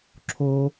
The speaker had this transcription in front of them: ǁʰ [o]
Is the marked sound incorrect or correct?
correct